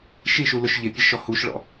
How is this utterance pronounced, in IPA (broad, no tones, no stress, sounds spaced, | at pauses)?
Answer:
ʃ i ʃ u l ʊ ʃ ʎ ɪ pʲ ɛ ʃ ɔ h u ʃ ɭ ɔ̰